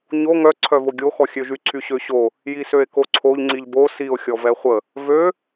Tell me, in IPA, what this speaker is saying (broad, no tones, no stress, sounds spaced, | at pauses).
ɲ o ŋ œ ǀʰ œ v o ɡʲ o x ɔ xʲ ø ʒ y ǀʰ y ɕ ø ɕ o | j i s ø e̯ k o ǀʰ o ʎ ŋ͡ǀ i ʎ b o s i o̯ xʲ ɔ v ɛ χʷ ə | v ø